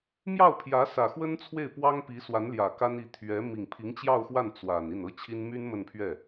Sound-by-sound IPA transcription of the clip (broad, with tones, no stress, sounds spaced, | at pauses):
m j ɑ˥˩ ʊ̯ pʰ j ä˧˥ s ä˨˩ x w ə˥ n t͡sʰ w e˥˩ ɪ̯ p w ɑ˥ ŋ p i˧˥ s w a˧˥ n l j ä˨˩ k a˥ n i˧˥ t̪ʰ ɥ ɛ˧˥ m i˨˩ ŋ pʰ i˧˥ ŋ t͡ɕ j ɑ˥˧ ʊ̯ x w a˥˩ n t͡s w a˨˩ n i˥˩ n ɤ˥ t͡ɕʰ i˥ n m y˥ n m ə˥˧ n pʰ ɥ ɛ˥˩